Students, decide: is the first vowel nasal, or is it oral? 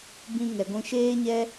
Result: nasal